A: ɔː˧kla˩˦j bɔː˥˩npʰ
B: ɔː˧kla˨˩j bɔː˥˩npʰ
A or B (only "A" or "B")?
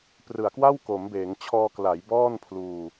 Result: A